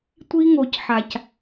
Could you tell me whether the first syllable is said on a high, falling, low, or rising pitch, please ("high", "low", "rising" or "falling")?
high